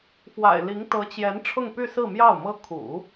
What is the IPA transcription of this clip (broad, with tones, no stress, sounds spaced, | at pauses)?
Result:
f w a̰˨˩ ɪ̯ l i˧˥ ŋ t̪ ɤ˧˥ t͡ɕ j ɛ˧˥ n ʈ͡ʂʰ ʊ˥˧ ŋ p y˥˧ s ɹ̩˥˧ m j ɑ˥˩ ʊ̯ m ɤ˥ kʰ ṵ˨˩˦